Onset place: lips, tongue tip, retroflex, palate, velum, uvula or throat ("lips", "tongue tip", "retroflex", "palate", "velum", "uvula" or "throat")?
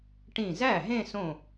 retroflex